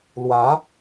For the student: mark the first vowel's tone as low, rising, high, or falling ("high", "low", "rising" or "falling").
rising